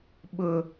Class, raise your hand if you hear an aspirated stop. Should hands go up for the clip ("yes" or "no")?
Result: no